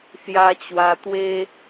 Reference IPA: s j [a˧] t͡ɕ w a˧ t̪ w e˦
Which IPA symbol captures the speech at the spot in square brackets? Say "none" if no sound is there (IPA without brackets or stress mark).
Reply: a˧